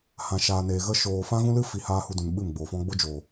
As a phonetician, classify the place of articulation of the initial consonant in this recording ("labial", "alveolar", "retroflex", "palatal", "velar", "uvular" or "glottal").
glottal